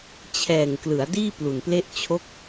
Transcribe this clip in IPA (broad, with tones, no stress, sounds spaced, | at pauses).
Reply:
t͡ɕʰ ɛː˨˩ ŋ k l ɯ˩˦ a̯ d iː˥˩ p l u˨˩ n p l e˥˩ ʔ t͡ɕʰ o˥˩ k̚